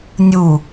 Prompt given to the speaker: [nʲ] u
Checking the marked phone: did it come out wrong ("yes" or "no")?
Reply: no